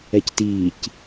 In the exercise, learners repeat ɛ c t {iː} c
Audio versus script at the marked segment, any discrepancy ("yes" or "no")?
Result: no